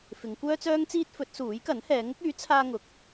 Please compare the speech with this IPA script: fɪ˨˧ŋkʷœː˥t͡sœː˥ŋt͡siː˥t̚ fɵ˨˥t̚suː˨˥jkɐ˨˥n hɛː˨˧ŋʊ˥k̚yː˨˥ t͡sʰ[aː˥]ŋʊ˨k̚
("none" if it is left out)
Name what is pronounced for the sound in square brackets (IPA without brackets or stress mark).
aː˥